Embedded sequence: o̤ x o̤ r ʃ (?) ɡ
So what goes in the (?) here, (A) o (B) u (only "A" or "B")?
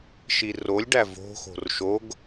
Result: A